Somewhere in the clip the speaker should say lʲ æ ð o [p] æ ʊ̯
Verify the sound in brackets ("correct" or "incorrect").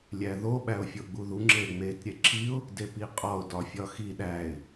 incorrect